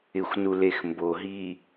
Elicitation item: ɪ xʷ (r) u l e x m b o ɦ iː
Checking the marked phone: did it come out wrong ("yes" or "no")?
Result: yes